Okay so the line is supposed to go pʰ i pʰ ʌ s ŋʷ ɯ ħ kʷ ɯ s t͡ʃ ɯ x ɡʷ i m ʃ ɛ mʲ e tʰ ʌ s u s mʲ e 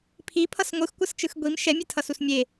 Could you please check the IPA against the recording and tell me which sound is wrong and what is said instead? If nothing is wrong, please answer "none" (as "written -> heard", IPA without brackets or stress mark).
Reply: ħ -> x